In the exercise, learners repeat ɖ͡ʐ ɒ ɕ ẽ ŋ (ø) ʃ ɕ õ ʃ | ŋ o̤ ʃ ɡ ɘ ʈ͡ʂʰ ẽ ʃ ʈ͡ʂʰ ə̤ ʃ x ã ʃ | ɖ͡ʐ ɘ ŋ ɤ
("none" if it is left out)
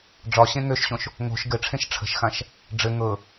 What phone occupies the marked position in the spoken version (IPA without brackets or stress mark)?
ø